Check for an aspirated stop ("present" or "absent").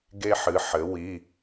absent